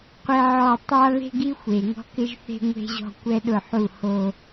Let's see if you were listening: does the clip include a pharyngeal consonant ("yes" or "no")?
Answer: yes